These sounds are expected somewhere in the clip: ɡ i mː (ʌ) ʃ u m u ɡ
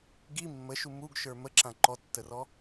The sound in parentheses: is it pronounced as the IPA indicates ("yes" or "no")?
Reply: no